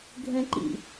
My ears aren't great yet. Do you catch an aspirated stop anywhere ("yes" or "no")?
no